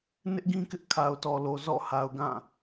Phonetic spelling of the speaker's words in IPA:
n ɪ˦ ʔ ɡ ĩ˦ k ɪ˦ ʔ kʰ a˨ ʊ̯ t ɔ˨ l o˨ z ɔ̰˦˨ h a˨ ʊ̯ ɡ ã˦˨

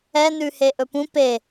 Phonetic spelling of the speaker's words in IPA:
ɛ n ʉ h e ʔ ɵ p ũ p e

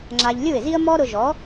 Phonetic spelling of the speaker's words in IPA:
ŋ͡ǁ a˧ ʎ lʲ u˥˩ ɪ̯ z i˥ ə̯ m ɔ˥ ɾ ʊ˧ ʒ ɔ˩˥

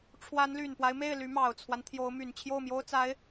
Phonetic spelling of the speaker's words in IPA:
ʈ͡ʂʰ w a˧˥ n l y˨˩ n p w a˦ ɪ̯ m e˥˩ ɪ̯ l y˧˥ m ɑ˨˩ ʊ̯ t͡sʰ w a˦ n t̪ʰ j o˧˥ ʊ̯ m y˨˩ n t͡ɕʰ j o˥˩ ʊ̯ m j o˥ ʊ̯ t͡s a˧˥ ɪ̯

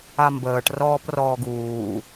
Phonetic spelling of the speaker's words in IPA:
a m b əː ʈ r ɔː p r ɔː ɡ uː

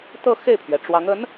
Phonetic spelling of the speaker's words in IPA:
t̪ ɤ˥˧ x e˥˩ ɪ̯ pʰ ɥ ɛ˩ ʈ͡ʂ w ɑ˧˥ ŋ ə˧˥ n

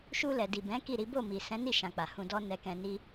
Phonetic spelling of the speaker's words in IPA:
ʃ u˧ l ɛ˨ d i˨ b ɛ̃˨˦ k i˦˨ ɾ i˨˦ b o˦˨ m i˨ s ɛ̃˨˦ n i˦˨ ʃ ã˨ k͡p a˨ h ũ˧ d ɔ˦ n ɛ˧ k ɛ̃˧ n i˦

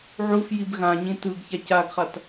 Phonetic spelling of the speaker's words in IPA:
ʕ u f j i b ɣ ã ɲ ĩ t ɯ ɡ ç a c a ɡ χ a t

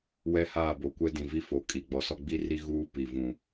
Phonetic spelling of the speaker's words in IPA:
w ɛ˦ h aː˦˨ b o˨ kʷ ɛ˦ d ĩ˨ v i˦ f o˨ kʼ i˨ ɡ͡b ɔ˨ s ɔ˦ ɡ͡b i˦ r i˦ ɣ uː˦ p i˨ v ũ˨

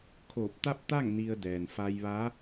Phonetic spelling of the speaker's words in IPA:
kʰ oː˧˩ p̚ t̪ a˥˨ p̚ t̪ a˥˨ ŋ n i˧ ə̯ d ɛː˩ n f a˧ j ʋ a˧˥

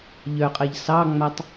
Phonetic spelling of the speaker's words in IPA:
ʎ œ qʼ ɜ ʎ s ɑ ŋ͡m a tˤ

